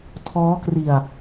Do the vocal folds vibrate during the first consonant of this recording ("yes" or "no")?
no